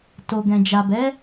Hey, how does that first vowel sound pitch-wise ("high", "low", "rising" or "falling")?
low